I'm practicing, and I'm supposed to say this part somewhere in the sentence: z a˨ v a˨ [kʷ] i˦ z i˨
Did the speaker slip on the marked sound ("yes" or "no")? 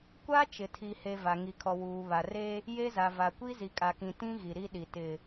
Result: no